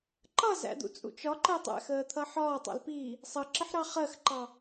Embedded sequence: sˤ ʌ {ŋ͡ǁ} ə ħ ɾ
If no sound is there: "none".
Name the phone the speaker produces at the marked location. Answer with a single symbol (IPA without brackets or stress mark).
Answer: ǁ